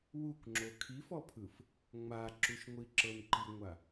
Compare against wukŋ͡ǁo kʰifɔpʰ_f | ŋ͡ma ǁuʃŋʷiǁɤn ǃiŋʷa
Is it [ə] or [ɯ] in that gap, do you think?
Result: ɯ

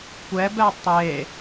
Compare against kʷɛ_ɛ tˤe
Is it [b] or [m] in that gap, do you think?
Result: b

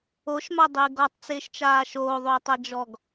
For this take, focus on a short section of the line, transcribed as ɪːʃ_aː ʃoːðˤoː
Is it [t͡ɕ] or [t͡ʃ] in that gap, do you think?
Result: t͡ʃ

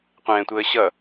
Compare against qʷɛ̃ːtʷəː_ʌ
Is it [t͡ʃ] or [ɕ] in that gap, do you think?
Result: ɕ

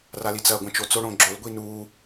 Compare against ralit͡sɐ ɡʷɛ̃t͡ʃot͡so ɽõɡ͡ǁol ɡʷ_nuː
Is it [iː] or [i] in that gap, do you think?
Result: i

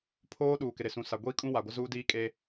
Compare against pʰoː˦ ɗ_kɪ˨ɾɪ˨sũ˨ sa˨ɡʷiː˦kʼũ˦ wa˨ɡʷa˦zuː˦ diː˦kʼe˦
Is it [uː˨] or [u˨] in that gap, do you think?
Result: uː˨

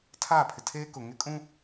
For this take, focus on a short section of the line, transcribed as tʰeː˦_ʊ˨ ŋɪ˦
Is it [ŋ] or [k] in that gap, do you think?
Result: k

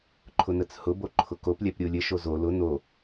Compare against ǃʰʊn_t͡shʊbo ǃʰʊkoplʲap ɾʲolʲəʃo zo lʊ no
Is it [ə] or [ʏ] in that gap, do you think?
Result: ə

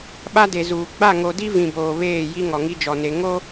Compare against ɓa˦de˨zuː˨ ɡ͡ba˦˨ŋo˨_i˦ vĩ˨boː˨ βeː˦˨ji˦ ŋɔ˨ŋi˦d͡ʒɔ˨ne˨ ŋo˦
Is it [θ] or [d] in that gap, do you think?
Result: d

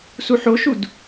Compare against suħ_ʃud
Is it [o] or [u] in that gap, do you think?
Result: o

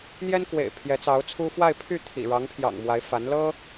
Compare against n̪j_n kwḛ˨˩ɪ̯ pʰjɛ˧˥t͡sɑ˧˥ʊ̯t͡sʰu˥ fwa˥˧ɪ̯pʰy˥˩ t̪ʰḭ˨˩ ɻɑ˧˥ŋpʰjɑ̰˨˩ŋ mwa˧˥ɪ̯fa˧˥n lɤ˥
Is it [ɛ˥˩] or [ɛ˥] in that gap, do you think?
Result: ɛ˥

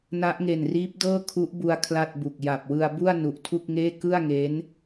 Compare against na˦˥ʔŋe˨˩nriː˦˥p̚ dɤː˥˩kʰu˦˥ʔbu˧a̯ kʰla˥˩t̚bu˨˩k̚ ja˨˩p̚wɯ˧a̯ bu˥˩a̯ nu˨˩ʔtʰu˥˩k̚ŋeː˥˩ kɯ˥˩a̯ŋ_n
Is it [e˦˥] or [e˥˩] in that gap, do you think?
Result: e˦˥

